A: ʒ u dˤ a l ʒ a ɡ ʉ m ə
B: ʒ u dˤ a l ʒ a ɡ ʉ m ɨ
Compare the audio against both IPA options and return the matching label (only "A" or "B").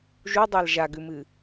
B